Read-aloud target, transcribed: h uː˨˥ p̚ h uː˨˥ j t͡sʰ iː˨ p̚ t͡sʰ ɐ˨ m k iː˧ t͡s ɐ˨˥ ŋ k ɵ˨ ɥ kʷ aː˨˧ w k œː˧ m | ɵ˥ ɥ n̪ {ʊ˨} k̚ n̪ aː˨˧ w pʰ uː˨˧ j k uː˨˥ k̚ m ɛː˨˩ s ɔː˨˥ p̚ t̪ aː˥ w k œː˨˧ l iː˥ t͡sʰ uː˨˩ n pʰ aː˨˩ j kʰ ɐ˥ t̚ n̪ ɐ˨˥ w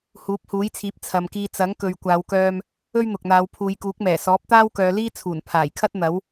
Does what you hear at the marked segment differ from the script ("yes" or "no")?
no